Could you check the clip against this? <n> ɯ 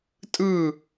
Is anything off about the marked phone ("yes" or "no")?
yes